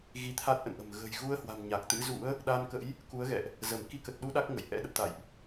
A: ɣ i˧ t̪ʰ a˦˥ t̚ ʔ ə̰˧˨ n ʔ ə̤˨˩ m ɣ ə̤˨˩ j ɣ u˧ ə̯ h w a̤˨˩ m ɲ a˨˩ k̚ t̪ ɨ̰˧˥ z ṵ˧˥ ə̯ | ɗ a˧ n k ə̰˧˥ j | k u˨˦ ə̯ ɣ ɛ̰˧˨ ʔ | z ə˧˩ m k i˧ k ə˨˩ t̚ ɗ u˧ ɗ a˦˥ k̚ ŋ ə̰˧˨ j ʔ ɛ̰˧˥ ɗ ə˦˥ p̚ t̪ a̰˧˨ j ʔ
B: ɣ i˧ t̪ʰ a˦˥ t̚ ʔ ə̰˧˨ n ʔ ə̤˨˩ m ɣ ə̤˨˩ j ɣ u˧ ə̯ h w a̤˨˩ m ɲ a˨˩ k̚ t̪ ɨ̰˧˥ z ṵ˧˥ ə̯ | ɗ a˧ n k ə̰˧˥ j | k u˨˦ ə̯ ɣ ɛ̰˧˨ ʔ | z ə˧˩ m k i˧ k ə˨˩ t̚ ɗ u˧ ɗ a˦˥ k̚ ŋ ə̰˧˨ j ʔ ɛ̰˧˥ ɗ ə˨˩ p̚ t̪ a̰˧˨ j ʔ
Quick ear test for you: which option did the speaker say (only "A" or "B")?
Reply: B